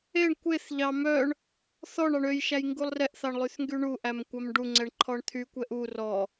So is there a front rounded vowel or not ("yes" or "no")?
yes